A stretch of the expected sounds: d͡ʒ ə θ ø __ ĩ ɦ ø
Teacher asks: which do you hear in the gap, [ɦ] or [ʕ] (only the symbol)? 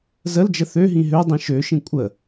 ɦ